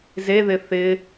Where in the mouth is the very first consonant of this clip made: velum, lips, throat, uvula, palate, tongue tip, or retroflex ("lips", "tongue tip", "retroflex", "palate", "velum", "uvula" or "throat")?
tongue tip